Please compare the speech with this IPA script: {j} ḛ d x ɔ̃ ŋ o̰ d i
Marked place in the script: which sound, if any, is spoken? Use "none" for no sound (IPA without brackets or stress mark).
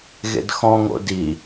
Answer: ɣ